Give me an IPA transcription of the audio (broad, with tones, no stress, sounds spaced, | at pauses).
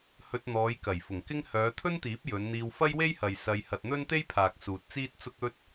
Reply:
h ɵ˧ t̚ n̪ ɔː˨˧ j k ɐ˨˩ j f ʊ˨˩ ŋ k ɪ˥ ŋ h œː˨˧ t̪ʰ ɵ˥ n t̪ iː˨˥ p̚ j ɵ˨˧ n n̪ iː˧ w f ɐ˥ j w e˥ j h ɐ˨ j s ɐ˧ j h ɐ˧ t̚ n̪ ɵ˥ n t̪ e˥ j pʰ aː˨ k̚ s uː˨ t̚ t͡s iː˥ t̚ t͡s ʊ˥ k̚ ɵ˥ t̚